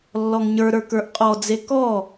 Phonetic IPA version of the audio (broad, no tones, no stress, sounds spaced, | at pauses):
lː ɔ ŋ ɲ ə˞ ɾ ə˞ k ə˞ ʔ qʼ ɔ d͡z e k ɔ